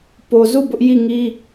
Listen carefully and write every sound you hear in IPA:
po˨zu˦˨ bʊ˦ʔ ji˦˨ŋi˦

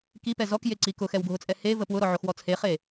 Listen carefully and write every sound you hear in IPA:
kipɛ zɔkjeǀi kʊxɛwɡʱʊt͡sʼɛ hevə pwʊɾɔʕoxwɔ t͡sʰeχe

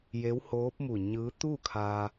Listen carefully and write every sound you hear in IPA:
je˧˥whoː˧˥p̚mu˧˩ ɲɯː˧˥ t̪u˥˨kʰaː˧

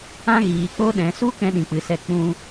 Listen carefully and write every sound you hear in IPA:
ã˦ ɣiː˨k͡po˧ɗɛ̃˨su˦ kɛ̃˦ɗĩ˨k͡pɨ˨sɛ˧ k͡pũ˧

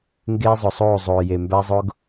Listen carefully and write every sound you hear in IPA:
ŋɡeː˦zˤʊ˨sˤoː˦˨ zˤoː˨ je˨mbæ˦zˤʊ˦ɡ

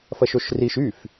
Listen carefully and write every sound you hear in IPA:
fɐʃoʃriʃ yf

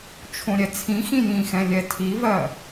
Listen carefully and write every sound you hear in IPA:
t͡ʃʰõɾʲɛt͡sʰĩxĩ jĩxɛ̃ lʲɛtʰivɜ

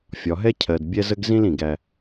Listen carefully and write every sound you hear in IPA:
fʲɒ˨ɦɛ˦cʰɜ˨dbʲɛ˦ zə˦ɡzĩ˦l ĩ˨ɡæ˦

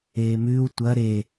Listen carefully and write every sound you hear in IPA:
eːmʉːw tʷɐ ɾe

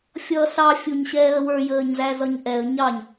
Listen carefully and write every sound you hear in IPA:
fʲʌːsɑ fʲuɲɕɛːə̯wə˞ jəːɲzæzʌɲʔɛə̯ ɲɑɲ

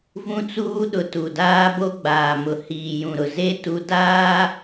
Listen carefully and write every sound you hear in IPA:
vũ˦t͡suː˦ ɗʊ˨tu˨ daː˦bo˦ɡ͡baː˨mʊ˨ hiː˨jũ˨ɾʊ˨ ze˦ tu˦ daː˦

